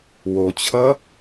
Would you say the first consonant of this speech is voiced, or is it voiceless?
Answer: voiced